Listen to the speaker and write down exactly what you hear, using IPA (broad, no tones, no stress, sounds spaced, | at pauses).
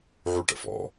ʕ u ʈ ə̰ f ɔ̰